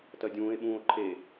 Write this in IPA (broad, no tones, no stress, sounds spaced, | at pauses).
t ɜ dʲ ũː e̯ ɓ ũː o̯ ǃʰ e